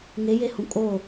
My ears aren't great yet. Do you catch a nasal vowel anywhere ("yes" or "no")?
yes